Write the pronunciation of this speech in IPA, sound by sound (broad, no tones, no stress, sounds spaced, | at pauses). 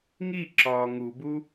ŋ i ǁ ɒː ŋ u b u